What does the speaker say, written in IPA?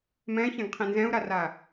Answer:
mɛ̃çɛ̃ɡqʰĩ nzɛ̃u̯ɾara

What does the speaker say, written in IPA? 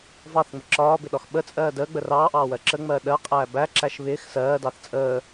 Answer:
vɑθŋ͡mə ǁɒːbɪɗɒx ɓət͡sʼɜː dəːɡ͡bə rɑːʔɑːwɜ ǁəŋ͡mɜː ɗɜqʼæː bæǁæʃ βɪːx sɜːdɑθ t͡sʼəː

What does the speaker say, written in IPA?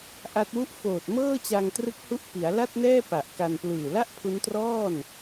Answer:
ʔa˦˥t̚wu˥˩ʔ foː˨˩t̚mɤː˥˩t͡ɕa˧ŋtrɯ˦˥k̚ hu˦˥ʔpi˩˦a̯ la˥˩t̚nɛː˥˩ pa˨˩ʔka˧n plɯː˨˩la˥˩ʔpʰu˦˥ntrɔː˥˩n

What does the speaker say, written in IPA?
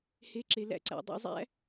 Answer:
he˨˦ ǁe˩læ̰˨˦ǀæ̰˩ dˤḭ˥˨zˤæ̰˥

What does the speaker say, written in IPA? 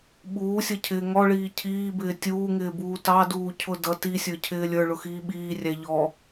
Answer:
ɓuːsʲʌcʰɪː ŋɔɭiː cʰiːbɪː tʲuːŋɪːbuː tɑduːcʰʊ dʌ tisʲə˞cʰɪː lʲə˞ɭʊxiː ɓiːrʲæ ʎɔ

